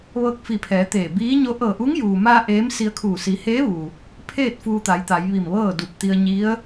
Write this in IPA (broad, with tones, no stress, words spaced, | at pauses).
ʋɤː˧k̚fi˧˩pʰɛː˩˧ t̪eː˧˩ biː˧˥ɲo˧˥ ʔɤː˧˩ʔu˧˥ŋjuː˩maː˧ ʔeː˧˥msi˧ə̯kʰuː˧˩ si˩˧ heː˧˥ʋu˩ | pʰeː˥˨t̚ fuː˧t̪a˩˧jt̪a˩˧j ʋi˧˩mʋɤː˥˨du˧˩p̚t̪i˧ə̯ ɲi˧˥ə̯